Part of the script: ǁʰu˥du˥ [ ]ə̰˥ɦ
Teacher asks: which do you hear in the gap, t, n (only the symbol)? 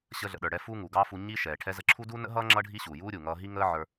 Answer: n